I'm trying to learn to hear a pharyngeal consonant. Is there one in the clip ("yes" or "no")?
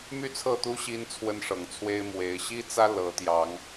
no